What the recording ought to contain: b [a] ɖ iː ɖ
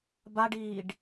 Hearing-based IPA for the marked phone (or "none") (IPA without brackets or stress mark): a